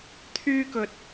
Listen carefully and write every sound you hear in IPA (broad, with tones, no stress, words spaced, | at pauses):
t̪ʰyː˥kɵ˧t̚